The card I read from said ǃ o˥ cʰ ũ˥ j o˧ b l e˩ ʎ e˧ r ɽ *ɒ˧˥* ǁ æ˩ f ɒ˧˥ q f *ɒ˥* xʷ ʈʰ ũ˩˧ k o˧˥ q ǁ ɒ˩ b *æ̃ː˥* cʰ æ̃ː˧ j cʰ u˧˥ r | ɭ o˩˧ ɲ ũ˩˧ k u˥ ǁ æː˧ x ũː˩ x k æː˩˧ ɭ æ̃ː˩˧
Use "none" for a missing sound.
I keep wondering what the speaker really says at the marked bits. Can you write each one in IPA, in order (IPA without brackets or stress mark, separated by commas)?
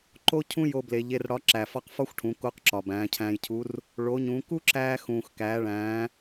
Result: ɒ˧˥, ɒ˥, æ̃ː˩˧